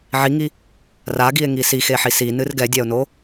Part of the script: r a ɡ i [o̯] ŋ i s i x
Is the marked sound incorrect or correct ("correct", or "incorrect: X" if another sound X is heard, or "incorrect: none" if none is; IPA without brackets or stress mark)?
incorrect: e̯